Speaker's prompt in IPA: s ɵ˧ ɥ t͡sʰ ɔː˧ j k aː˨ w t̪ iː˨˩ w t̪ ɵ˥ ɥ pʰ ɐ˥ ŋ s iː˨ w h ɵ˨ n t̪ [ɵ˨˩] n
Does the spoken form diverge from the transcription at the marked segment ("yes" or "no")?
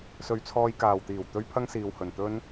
yes